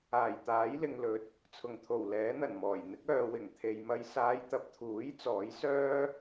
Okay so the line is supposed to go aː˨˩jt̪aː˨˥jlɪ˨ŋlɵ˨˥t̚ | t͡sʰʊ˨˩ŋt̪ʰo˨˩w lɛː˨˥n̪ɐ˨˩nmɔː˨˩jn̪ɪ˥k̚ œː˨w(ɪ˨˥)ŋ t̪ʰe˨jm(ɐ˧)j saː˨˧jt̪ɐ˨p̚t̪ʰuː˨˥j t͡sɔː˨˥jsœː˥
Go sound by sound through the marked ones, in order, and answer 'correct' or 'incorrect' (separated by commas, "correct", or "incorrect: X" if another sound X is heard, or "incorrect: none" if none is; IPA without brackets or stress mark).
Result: incorrect: ɪ˨˩, correct